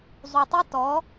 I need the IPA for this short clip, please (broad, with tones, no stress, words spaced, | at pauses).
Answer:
zˤu˨tˤi˦tɔ˨˦